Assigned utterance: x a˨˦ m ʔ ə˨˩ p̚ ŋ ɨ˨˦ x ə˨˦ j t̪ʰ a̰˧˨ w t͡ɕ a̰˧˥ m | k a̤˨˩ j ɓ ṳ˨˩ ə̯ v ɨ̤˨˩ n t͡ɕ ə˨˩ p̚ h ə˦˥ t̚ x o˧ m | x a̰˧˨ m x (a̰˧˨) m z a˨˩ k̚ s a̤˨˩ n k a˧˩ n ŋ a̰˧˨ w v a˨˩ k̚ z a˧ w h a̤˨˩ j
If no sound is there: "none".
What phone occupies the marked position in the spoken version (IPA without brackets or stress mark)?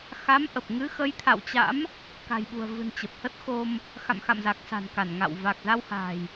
a̰˧˨